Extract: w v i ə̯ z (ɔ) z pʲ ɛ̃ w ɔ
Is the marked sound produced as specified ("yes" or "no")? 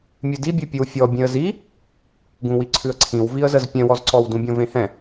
no